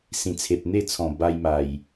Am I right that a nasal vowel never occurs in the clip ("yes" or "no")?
no